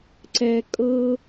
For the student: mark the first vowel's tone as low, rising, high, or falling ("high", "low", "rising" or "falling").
low